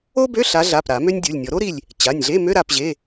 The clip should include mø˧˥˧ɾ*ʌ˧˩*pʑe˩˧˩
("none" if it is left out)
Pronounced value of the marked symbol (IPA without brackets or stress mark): a˧˩